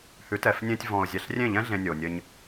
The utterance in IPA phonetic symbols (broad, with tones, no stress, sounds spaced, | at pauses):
h ʉ˨˦ t ɛ˨ f nʲ ẽ˧ tʲ v ɔ̃˨ ʊ̯ zʲ ɛ˨ ɬ rʲ ẽ˦˨ ʎ ɛ̃˦ ɮ ẽ˧ nʲ o˨ nʲ ɘ˧ ɲ